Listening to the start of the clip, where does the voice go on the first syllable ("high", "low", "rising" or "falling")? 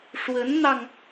rising